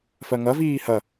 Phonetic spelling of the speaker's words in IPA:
f ɜ ŋ ɐ v iː h ɐ

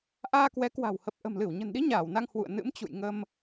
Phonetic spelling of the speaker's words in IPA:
ʔ aː˧ k w ɛ˨˦ k w a̤˨˩ w h ə˨˩ p̚ ʔ ə̤˨˩ m l ɨ˧˩ w ɲ ə̤˨˩ n ɗ i˨˦ ɲ aː˧˩ w n a˧ ŋ h w ṵ˧˨ ə̯ n ɨ̰˧˥ m t͡ɕ ṵ˧˨ j ŋ ə˧ m

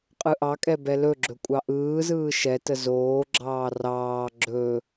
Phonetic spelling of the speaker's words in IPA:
qʼ ɯ ʔ ɑ kʼ ɛ b ɛ l ɵ ɡ͡ǁ ɵ kʷʼ ɑ ʔ ɯː z ɯː ʃ ɛ t ə z oː ɡ͡ǁ ɑː r ɑː ɡ͡ǁ ɵ

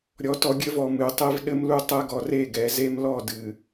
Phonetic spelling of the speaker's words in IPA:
ɾʲ ɔ˨ t ɔ˨ ɡʲ ɘ˦ v ɔ˨ m ɨ˨ tˤ e˦ v ɗ ɘ˦ m l u˦ tˤ ɛ˦ ɡ ɔ˨ r e˦˨ ɡ ɛ˨ z e˦ m l ɔ˦˨ d ɨ˨

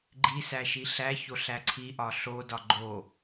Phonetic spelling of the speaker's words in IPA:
ɡ͡ǃ i s æ ʃ i ɬ æ ç o ɬ æ ǀʰ i ʔ ɒ ɬ o d ɒ ɡ͡ǃ o

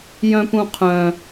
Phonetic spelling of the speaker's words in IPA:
j œ̃ p ũ qʰ œ̃

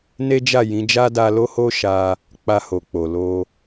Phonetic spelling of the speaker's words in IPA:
n e˦ d͡ʒ a˦˨ j ĩ˨˦ d͡ʒ a˦ d a˧ l o˦ h o˦ ʃ a˧ | k͡p a˧ h o˨ k͡p o˨ l o˧

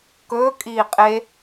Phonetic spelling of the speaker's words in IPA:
k ɵː kʼ iː qʼ e

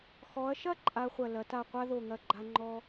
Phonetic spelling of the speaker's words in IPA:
x ɔ˩˧ ɐ̯ ʃ ɐ˥˧ ǃʼ a˧ χʷ ɐ˧˩ l ɐ˩˧ t a˧˩ qʷ a˥ ð o˧˩ ŋ ɐ˧˩ ɡ͡ǃ a˧ ŋ͡ǃ ɔ˧

